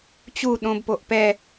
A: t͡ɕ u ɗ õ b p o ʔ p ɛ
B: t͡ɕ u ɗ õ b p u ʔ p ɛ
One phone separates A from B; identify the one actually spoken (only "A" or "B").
A